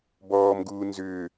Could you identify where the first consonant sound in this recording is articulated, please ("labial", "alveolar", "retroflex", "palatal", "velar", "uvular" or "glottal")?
labial